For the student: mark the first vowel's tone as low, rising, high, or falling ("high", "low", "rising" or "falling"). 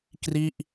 falling